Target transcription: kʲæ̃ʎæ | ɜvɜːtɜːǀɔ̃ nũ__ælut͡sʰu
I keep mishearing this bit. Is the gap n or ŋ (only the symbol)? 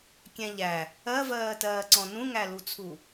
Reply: ŋ